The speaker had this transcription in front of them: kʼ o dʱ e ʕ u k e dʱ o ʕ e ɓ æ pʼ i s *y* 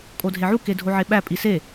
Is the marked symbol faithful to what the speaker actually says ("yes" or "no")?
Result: no